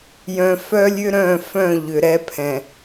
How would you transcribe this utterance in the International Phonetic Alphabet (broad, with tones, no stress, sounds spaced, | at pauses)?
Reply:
j œ̃˨ f œ˦ lʲ ʏ˦ ɾ œ̃˦˨ f œ̃˦˨ ʎ ʏ˨ ɾ ɛ˦ pʰ ɛ̃˨